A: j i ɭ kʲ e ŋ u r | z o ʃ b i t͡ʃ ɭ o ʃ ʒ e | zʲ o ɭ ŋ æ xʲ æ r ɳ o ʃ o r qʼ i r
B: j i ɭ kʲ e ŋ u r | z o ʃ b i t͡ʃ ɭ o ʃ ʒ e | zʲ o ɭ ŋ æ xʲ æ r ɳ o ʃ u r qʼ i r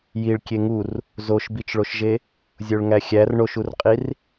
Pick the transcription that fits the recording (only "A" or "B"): B